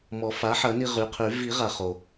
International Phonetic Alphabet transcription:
m ɔ˨˩˦ f a˩˥ ħ ɐ˨˩˦ n i˧ ʁ y˩˧˩ qʰ y˨˩˦ v i˨˩˦ ʁ a˩ χ o˩

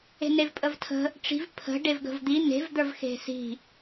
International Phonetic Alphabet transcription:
e̤ n e v pʼ ə v tʰ ə̤ | ʈ͡ʂ i̤ v pʰ ə̤ ɖ e v ɡ ə̤ v d̪ i n̪ e̤ v d̪ ə˞ v x e̤ s i̤

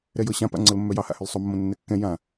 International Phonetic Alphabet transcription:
ɾ ɛ j ɤ ɕ ã p a̰ ŋ͡ǀ ɤ l mː œ j ɑ h a̰ h ʏ l sˤ o mː õ nː ɛ kː ɛ̃ j ã

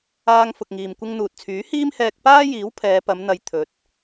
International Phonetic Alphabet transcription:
aː˧ ŋ f ʊ˨ k̚ ŋ iː˨ m kʷ ɪ˧ ŋ n̪ uː˨ t̚ t͡sʰ yː˨˥ h iː˥ m h ɛː˧ k̚ p aː˥ j iː˨˥ w pʰ ɛː˨˧ p ɐ˨˧ m n̪ ɐ˨ j t̪ʰ ɵ˨˥ t̚

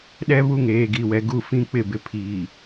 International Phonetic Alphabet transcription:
ɗ ɛ˦ β u˦˨ ŋ eː˨ ɡ i˨ w ɛ˨ ɡ u˦˨ f ĩ˦ k͡p ɪ˦˨ b ɪ˨ pʰ iː˨

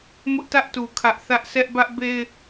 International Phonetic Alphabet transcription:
m ʊ˦ ʔ t ä˦ ʔ t u˨ kʰ ä˦ ʔ θ ä˦ ʔ s ɛ˦ ʔ b ä˦ ʔ b e˦ ɪ̯

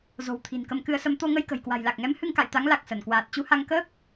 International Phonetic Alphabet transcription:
z o̤˨˩ w t̪ʰ i̤˨˩ n k ə˧ m k ɨ˧ ə̯ s ə˧ m t̪ o˧ ŋ ə˧ j k ə̤˨˩ j k w a̤˨˩ j l a˨˩ k̚ ŋ ɛ˨˦ m h ɨ˧ ŋ k a̰˧˨ j t̪ a˨˦ ŋ l a˨˩ k̚ s ə˧˩ n k w aː˨˩ t̚ t͡ɕ u˧ h a˧ ŋ k əː˦˥ k̚

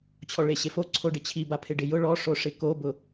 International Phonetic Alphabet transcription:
t͡ɕʰ ɔ ɭ e ɕ e f o ǀʰ o ɖ ɪ t͡ɕʰ i b a pʰ ɪ ɖ ɪ j ʊ ɭ ɔ ʂ o ʂ ɪ k o b ʊ

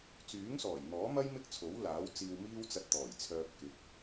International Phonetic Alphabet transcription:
t͡s yː˨˥ ŋ s ɔː˨˩ j n̪ ɔː˨˥ m ɐ˥ j m ɪ˥ k̚ t͡sʰ o˨˥ w l aː˨˥ w t͡s iː˧ w m iː˥ w t͡s ɐ˧ t̚ t̪ ɔː˨˩ j t͡sʰ œː˧ p̚ k ɪ˨˥ k̚

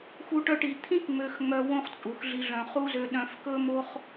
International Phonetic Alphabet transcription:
x u˧ ʈ œ˧ ʈ i˨ t̪ʰ ĩ˦ k ŋ͡m ø˧ x ŋ͡m œ˧ w õ˦ χ t͡sʼ u˨ x ɮ i˧ ɮ œ̃˨ χ u˦ z ø˧ ɗ œ̃˧ f k ɵ˦ m o˦ χ

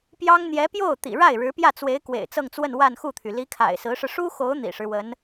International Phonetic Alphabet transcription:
p j ɑ˥ ŋ n̪ j ɛ˧˥ p j o˥˩ ʊ̯ t̪ ḭ˨˩ ɻ a˥˩ ɪ̯ ɻ ɻ̩˧˥ p j ä˥˩ t͡s w e˧˥ ɪ̯ k w ḛ˨˩ ɪ̯ t͡s ɤ˥˧ ŋ t͡s w ə˥˧ n w a˥˧ n x u˥˩ t̪ʰ y˩ l i˧˥ kʰ a̰˨˩ ɪ̯ s ɹ̩˧˥ ʂ ɻ̩˧ ʂ u˥ x o˧˥ ʊ̯ n̪ ḭ˨˩ ʂ ɻ̩˦ w ə˧˥ n

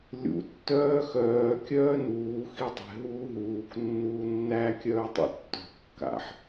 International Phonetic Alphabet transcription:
lʲ ṵ tː œː x œː kʲ œː n uː x i dˤ ɛ̤ ɦ uː ɦ uː k nː uː nː æ kʲ œː tˤ ṵ tː ɔ̤ kː a̰ ħ

